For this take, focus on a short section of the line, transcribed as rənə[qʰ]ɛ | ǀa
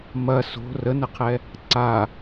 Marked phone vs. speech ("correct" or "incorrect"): correct